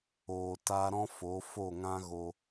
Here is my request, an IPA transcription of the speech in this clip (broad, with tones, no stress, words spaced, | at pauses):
oː˨ ta˧ɾɔ̃˦ fo˨˦ fo˦˨ŋã˦ɣo˧